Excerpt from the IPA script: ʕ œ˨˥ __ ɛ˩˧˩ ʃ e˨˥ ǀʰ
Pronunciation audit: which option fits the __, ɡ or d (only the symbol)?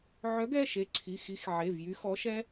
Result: ɡ